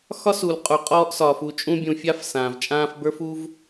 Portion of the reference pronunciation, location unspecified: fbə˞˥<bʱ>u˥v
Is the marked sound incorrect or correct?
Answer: incorrect